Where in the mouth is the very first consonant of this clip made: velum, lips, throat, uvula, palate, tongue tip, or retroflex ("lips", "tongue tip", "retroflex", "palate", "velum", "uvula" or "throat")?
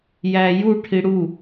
palate